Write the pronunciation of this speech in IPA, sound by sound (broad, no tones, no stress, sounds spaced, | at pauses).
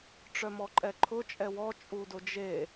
ʈ͡ʂ œ m ɔ ǃʼ ɛ ǃʰ ʊ t͡ʃʼ ɛ w ɔ t͡ʃʼ u d ʊ d͡ʒ e